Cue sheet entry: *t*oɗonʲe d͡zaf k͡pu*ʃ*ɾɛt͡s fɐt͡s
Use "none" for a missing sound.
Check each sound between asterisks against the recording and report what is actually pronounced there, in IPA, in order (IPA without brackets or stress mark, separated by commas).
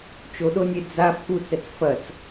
t͡ʃ, t͡s